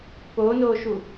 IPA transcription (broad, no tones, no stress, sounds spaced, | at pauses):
p oː n oː ʃ u